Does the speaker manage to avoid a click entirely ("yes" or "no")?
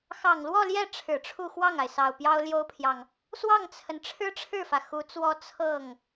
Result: yes